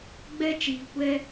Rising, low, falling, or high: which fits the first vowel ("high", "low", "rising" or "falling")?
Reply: high